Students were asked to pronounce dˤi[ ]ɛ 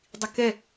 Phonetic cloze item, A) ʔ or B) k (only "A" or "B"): B